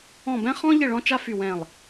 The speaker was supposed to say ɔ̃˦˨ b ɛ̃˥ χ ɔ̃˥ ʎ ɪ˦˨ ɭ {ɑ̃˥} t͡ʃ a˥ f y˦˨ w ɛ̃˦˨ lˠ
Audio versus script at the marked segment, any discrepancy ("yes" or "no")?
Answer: yes